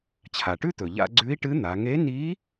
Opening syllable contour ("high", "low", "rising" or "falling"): low